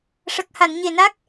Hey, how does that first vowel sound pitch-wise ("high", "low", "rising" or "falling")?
low